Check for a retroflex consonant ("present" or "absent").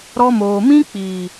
absent